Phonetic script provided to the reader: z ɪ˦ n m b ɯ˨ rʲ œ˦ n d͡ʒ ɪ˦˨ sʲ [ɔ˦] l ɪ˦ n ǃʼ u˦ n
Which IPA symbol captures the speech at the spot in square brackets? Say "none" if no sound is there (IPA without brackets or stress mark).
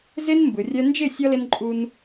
ɔ˦